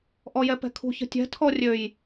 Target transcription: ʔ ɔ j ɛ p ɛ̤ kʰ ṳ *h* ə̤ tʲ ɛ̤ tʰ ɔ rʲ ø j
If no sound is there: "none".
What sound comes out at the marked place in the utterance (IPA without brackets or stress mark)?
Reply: ç